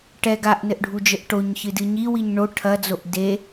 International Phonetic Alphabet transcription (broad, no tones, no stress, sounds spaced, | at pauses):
ʈ ɛ ɡ a ʔ n ɘ ʔ ɖʱ u d͡ʒ ɘ ʔ ʈ o ɲ ç ɨ d ɨ ɲ i w i ɲ ɳ o ʈʰ ɐ d͡z o ʔ d e